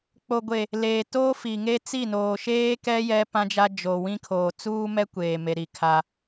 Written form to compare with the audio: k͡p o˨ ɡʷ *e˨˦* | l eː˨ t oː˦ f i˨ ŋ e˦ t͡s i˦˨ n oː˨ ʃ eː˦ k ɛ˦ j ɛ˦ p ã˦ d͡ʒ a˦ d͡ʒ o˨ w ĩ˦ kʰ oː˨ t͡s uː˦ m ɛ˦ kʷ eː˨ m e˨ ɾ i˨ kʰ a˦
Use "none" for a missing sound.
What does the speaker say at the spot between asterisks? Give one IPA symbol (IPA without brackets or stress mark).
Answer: e˨